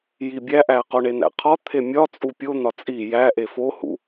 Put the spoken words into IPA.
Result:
j i bʲ æ ʔ æ q o ɳ e n̪ æ̰ qʰ ɒ t̪ʰ e mʲ ɒ t͡sʼ u pʲ o n̪ ɒ t͡sʼ i j æ ʔ e f o h ṵ

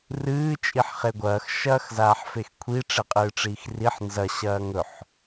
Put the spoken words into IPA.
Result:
r ɨː t͡ʃʼ i ħ χ e ɡʷ ɐː x ʃ ɐː x z aː ħ f e x kʷʰ i ʈ͡ʂ e qʼ ɨː ʈ͡ʂ iː x r i ħ n z ɐ ɕ ɐː ŋ ɵ ħ

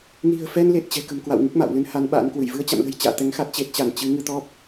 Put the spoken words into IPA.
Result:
n i̤˨˩ ə̯ f ɛ˧ n l e˨˩ t̚ t͡ɕ ɛ̤˨˩ k ə̤˨˩ m k w a̰˧˨ w ŋ ɨ˦˥ k̚ m a̰ː˧˨ w l ɨ˨˦ n h a˨˦ n ɓ a̰ː˧˥ n k w ɨ˧˩ j v ɨ˧ ə̯ t͡ɕ a̰˧˨ m l ə̤˨˩ j t͡ɕ a̰ː˧˨ t̪ ɛ˨˦ ŋ x a˦˥ t̚ t͡ɕ e˨˩ t̚ t͡ɕ a˧˩ n t͡ɕ ɨ˨˦ ŋ ɨ˧ t̪ ɔ˦˥ p̚

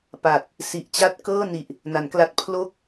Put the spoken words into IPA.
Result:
p a˨˩ t̚ | s i˨˩ ʔ t͡ɕ a˥˩ t̚ k ɤː˥˩ n i˨˩ ʔ | n a˩˦ n k l a˦˥ t̚ pʰ l o˥˩ k̚

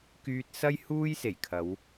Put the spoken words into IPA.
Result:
k yː˧ t̚ s ɐ˥ j h uː˥ j s e˨˩ j kʰ ɐ˨˧ w

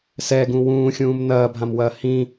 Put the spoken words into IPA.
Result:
s ɛ ɡ ũ w ũː xʲ ũː m n ɐː bʱ ã m w ɐː h ĩ

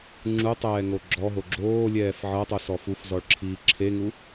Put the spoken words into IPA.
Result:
ŋ͡ǁ u tˤ ɛː ŋ o ɡ͡ǁ ɔ ɦ o ɡ͡ǁ oː lʲ ɛː f ʕ ɤ tˤ u s ɔ f u f z ɔ ɭ ǁʰ iː ǁʰ e ŋ u

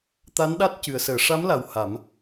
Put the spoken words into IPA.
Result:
t̪ a˧˥ n ɗ a˦˥ t̚ c ɨ˨˩˦ ə̯ s əː˨˩˦ ʂ a˧˥ m l a˨˩ w h a˨˩˦ m

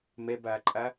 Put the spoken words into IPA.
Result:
m ɛ b aː ǃʼ a

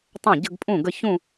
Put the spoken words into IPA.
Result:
tˤ ɛ̃˥˩ ɟ ə˥˧ ɡ pʼ ũ˥˩ ɡ ə˥˧ ç ũ˥˧

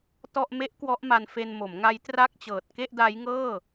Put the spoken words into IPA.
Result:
t ɔ˥˩ ʔ m e˦˥ ʔ k w ɔ˦˥ ʔ m a˧ n f e˧ n m o˩˦ m ŋ a˦˥ j t r a˥˩ k̚ t͡ɕ ɤː˨˩ t̚ k e˥˩ ʔ d a˦˥ j ŋ ɤː˥˩

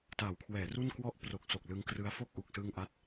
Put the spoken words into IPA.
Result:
t a˩˦ w kʰ w ɛː˩˦ r u˥˩ n k w ɔ˦˥ ʔ p r o˨˩ k̚ s o˨˩ k̚ l ɯ˧ ŋ k r ɯ˦˥ a̯ f o˥˩ k̚ ʔ u˨˩ k̚ s ɯ˧ ŋ ʔ a˦˥ t̚

